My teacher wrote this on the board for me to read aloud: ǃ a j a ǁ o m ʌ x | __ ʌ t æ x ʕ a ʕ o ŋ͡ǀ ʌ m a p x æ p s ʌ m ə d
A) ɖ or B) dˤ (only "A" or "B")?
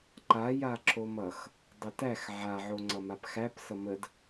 B